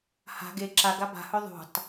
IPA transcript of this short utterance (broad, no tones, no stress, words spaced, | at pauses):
ha̤ ɡe ǁaɡa ba̤hɵ ðˤṳtˤ